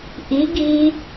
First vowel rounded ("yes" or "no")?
no